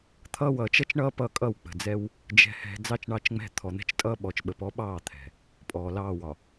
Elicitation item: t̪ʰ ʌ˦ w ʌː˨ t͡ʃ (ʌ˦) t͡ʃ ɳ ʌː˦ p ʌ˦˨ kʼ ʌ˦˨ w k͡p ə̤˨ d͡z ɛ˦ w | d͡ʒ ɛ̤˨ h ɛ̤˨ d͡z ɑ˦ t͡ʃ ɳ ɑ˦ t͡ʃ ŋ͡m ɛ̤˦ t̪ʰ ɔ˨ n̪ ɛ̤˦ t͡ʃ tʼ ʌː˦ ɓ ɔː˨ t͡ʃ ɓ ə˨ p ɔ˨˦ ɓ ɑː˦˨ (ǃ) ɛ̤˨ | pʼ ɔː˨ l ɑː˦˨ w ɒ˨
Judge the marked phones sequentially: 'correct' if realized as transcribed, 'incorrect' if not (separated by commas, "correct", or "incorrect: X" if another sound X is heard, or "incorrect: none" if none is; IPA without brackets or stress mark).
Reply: correct, incorrect: t̪ʰ